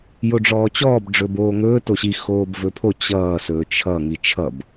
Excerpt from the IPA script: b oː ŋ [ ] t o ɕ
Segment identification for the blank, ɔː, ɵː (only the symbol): ɵː